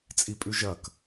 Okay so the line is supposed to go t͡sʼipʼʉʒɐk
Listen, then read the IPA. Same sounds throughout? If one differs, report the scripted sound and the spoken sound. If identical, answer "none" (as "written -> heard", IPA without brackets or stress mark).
none